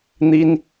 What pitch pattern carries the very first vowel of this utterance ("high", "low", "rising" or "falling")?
high